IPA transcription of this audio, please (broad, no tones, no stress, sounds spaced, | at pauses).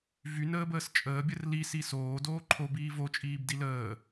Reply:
v y n əː b əː s t͡ʃʼ əː bʲ ə r l i s i s oː d oː ǃʰ o b iː v o t͡ʃʼ iː b d i l əː